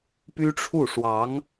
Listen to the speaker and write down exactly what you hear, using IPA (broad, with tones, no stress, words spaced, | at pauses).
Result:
py˥ʈ͡ʂʰu˥˩ʂwɑ˧˥ŋ